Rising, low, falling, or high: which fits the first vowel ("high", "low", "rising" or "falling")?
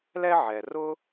high